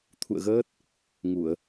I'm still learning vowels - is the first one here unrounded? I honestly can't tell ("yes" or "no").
no